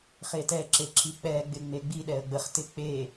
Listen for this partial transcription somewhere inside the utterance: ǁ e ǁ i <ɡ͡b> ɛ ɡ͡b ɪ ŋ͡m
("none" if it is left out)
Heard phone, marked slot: k͡p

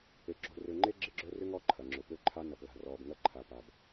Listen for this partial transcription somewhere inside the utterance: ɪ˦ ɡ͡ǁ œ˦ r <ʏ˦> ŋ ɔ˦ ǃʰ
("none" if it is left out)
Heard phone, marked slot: ʏ˦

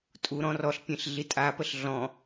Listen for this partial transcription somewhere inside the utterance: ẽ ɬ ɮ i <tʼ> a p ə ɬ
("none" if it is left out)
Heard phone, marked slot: tʼ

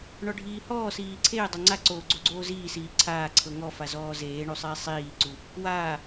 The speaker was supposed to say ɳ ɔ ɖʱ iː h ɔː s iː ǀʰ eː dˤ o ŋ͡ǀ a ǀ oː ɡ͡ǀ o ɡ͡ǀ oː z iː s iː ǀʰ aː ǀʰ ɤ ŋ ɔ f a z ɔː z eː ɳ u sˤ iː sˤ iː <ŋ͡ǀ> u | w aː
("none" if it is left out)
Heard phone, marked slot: ǀ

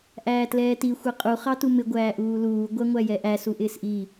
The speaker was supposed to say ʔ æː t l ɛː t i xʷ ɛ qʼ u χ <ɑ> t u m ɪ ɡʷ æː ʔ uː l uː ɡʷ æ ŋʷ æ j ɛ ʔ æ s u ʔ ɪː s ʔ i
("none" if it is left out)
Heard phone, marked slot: ɑ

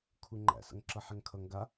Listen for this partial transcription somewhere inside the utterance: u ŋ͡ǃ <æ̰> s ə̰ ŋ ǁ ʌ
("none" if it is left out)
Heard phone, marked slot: æ̰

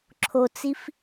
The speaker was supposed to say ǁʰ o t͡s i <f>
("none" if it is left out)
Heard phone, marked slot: f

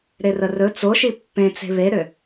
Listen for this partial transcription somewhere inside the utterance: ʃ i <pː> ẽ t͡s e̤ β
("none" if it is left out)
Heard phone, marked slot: pː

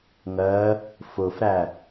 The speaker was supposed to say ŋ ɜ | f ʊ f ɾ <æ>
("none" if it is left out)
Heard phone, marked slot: æ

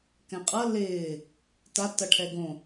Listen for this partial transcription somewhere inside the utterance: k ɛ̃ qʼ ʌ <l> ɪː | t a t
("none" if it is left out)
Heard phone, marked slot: l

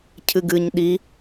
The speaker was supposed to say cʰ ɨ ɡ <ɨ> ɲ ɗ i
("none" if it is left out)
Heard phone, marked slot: ɨ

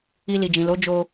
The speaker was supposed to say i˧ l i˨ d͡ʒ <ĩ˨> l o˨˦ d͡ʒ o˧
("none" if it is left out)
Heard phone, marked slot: ĩ˨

